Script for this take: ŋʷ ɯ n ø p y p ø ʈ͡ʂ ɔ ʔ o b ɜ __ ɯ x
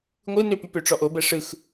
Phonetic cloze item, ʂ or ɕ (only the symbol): ʂ